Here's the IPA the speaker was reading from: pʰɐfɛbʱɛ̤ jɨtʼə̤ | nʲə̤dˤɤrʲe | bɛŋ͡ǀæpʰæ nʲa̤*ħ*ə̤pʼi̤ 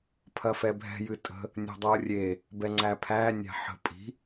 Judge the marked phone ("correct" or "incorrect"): correct